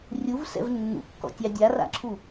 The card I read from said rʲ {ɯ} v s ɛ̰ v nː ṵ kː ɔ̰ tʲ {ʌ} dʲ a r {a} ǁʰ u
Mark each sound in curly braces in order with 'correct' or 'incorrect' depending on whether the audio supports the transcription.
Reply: incorrect: u, incorrect: ɑ, incorrect: a̰

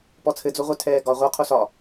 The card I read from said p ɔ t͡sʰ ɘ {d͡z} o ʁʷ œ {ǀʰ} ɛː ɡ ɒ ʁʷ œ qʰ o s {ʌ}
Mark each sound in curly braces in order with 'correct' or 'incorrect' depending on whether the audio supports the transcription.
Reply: correct, incorrect: tʰ, incorrect: ɒ

